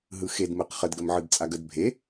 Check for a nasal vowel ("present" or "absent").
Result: absent